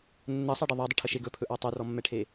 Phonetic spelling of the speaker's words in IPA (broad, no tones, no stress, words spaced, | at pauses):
nːɜsˤɑɖɪ ðˤadˤɪʈʰəʃe ɡɵpʰɵʔɑ tˤɵrɔmːɛʈʰe